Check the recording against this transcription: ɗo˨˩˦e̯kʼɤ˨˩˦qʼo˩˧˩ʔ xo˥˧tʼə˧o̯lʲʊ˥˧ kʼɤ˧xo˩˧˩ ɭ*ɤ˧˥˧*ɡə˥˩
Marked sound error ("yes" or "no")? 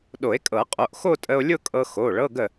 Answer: no